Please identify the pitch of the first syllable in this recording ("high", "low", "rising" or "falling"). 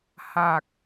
low